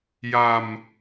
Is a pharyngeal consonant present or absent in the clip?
absent